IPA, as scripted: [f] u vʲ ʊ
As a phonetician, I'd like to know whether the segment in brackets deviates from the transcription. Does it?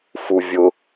no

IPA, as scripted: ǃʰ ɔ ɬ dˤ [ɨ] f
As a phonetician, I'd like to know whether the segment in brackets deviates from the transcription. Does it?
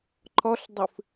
no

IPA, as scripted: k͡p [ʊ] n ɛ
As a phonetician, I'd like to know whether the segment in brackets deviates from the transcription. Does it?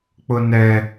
no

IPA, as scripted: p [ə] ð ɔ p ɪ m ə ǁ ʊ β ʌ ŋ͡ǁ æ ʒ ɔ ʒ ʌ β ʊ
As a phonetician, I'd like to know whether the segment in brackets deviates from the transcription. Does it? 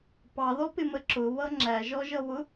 yes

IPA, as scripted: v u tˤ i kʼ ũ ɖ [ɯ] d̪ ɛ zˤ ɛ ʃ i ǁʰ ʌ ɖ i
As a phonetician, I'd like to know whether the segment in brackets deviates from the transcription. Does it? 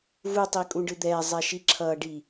no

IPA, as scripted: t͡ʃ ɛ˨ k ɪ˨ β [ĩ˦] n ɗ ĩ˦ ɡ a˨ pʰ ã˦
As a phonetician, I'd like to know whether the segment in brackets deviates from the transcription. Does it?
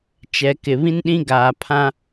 no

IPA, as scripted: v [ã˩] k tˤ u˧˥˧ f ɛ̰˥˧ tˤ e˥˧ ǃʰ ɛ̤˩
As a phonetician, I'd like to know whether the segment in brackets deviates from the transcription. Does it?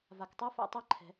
yes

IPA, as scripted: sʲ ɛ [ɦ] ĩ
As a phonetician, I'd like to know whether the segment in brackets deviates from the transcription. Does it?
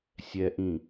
yes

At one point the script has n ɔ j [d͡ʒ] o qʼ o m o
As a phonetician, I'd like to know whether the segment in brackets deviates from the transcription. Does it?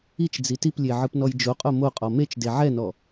no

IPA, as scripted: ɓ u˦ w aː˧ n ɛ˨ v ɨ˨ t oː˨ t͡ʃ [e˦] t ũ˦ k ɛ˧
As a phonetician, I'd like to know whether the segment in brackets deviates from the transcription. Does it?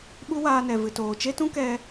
no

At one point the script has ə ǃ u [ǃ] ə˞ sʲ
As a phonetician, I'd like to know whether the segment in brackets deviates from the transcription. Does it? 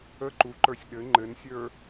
no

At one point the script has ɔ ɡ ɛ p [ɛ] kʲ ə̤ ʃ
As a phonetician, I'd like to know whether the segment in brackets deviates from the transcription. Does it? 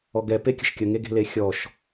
yes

